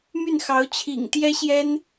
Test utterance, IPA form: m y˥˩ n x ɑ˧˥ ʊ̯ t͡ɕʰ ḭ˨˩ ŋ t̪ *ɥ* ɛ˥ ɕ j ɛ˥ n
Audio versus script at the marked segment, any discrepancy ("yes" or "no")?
yes